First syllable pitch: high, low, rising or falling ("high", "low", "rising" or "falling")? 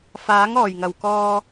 rising